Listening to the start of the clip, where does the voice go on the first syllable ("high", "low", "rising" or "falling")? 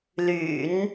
low